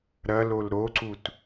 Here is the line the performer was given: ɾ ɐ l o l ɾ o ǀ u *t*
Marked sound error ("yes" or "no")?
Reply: no